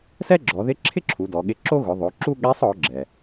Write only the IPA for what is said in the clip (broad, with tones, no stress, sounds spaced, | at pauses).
s ɛ˥ ɡ͡ǁ ɔ˩˧ ð ɪ˧˥ ǁʰ ɪ˥ ǁʰ u˩˧ d ɔ˩˧ ɠ ɪ˧˥ ǁ o˥ ɣ ʊ˩˧ ðˤ o˩˧ ǁ u˥ ɠ ɛ˧˥ sˤ ɔ˩˧ ɡ͡ǁ ɛ˩